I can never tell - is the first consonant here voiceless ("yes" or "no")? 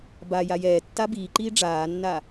no